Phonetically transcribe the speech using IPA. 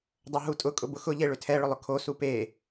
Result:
dˤ o ɦ u tʼ ʊ kʼ ʊ b ʊ x ʊ ʎ e ɭ ʏ tʰ ɛ ɭ ʏ lˠ ʊ kʰ o s u p e

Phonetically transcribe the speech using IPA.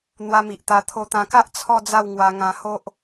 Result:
n̪ w a˧ m i˨ ʔ t̪ a˧ t̪ʰ o˧ t̪ ã˧ k a˦ ʔ t͡sʰ ɔ˥˧ d͡z a˥˧ w ŋ w a˧ ŋ ã˧ h o˦ ʔ

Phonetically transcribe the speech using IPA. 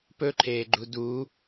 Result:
p ɵ ǃʰ eː ɡ͡ǃ u d u

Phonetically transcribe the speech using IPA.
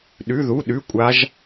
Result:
ɗ ʉ˧˥˧ ð u˧˥˧ ɗ ʉ˧˥˧ kʷʼ a˦˥ ʒ

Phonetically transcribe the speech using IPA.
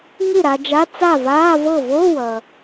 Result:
ŋ ɨ˥˩ ɾ a˧ d͡ʒ a˧˥˧ t͡s a˥˩ v aː˧˥˧ v ɤ˥˩ v o˧˥˧ w ʌ˩

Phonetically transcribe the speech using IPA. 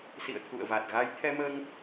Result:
s ḭ˧˨ ə̯ t̪ʰ ṵ˧˨ ə̯ v a˨˩ t̚ ɣ a˨˦ j t̪ʰ ɛ˧ m əː˧ ŋ

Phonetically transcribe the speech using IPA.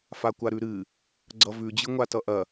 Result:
f a kʷ a ɾ ʉ ɾ ɨ | ɡ͡ǀ ʌ v ʉ d͡ʑ ɨ ŋʷ a t ʌ ʔ ɐ

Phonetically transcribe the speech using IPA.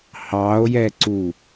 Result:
h ɑ o̯ j ɛ ǀ u

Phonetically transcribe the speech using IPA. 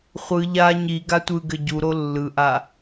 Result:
χʷ ɯ ʎ a ɲ i ɡ a tʷ ɯ ɡ ɘ ɟ u ɾ o lː ɯ ʔ a

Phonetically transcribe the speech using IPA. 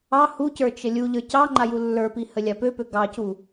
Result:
ɑ h u c ə˞ t͡ʃ ə lʲ u ʎ ə˞ c ɑ ŋ͡ǃ a j u lː ə˞ p i h ə lʲ a p ø p ø ɡ ɑ c u

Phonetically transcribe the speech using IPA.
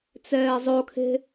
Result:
t͡s ɛː zˤ o kʰ e̤

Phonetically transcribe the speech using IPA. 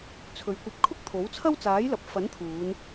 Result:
t͡sʰ ɵ˨˧ ɥ kʷ ɐ˧ p̚ kʰ ʊ˥ k̚ t̪ʰ o˨˥ w t͡sʰ ɐ˥ w t͡s aː˨˥ j l ɐ˨ p̚ f ɐ˨˥ n t̪ʰ uː˨˧ n

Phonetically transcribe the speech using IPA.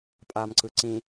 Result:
pʼ a m ǀ ɯ ǀ ĩ

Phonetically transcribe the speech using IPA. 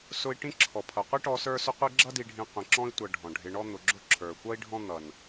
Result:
s ʊ˦ i̯ ʈ ĩ˥ ǁʰ ɔ˩ pʰ ʌ˩ qʷ i˥ ʈ ɔ˦ s ə˞˥ s ʊ˥ qʷ ɪ˦ ɡ͡ǁ ʌ˦ d i˨ ɖʱ ĩ˨ qʷ ĩ˩ ǁ ɔ̃˦ i̯ tʷ ʌ˨ ɖʱ ɔ̃˩ ɖʱ ɪ˨ ɳ ɔ˦ n̪ ʊ˨ ɡ͡ǁ ʊ˥ ǁʰ ə˞˩ kʷ ʌ˥ i̯ ɖʱ ɔ̃˦ n̪ ʌ˩ n

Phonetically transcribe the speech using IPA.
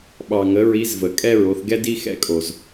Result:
ɓ ɑ˩ ŋ ə˩˧ ɹ i˧˥ z v ə˩ kʼ ɛ˥ ɹ o˩˧ θ ɡ ɛ˥ d i˥ x ɛ̰˥ kʼ o˩ z

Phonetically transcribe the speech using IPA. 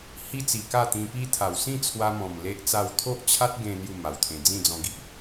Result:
h i˦ t͡s i˨˩ k a˥˧ t̪ ĩ˧ p i˦ t̪ʰ a˨˩ w s ĩ˥˧ t͡sʰ w a˧ m ɔ̃˨˩ m l e˦ ʔ t͡s a˥˧ w t̪ʰ o˦ ʔ t͡ɕʰ a˦ t̚ ɡ ẽ˧ n̪ j u˥˧ m a˨˩ w t̪ʰ ẽ˧ d͡z ĩ˥˧ d͡z ɔ̃˧ ɡ i˦ ʔ

